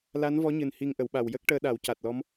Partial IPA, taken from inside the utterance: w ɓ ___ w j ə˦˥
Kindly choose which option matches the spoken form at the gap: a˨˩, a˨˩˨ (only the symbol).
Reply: a˨˩